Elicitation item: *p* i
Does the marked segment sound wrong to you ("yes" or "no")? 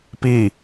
no